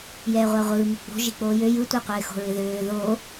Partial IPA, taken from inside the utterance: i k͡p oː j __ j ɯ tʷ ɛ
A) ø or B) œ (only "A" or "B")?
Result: A